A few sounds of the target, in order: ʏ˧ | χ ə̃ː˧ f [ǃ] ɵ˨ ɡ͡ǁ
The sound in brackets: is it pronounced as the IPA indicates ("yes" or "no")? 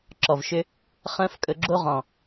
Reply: no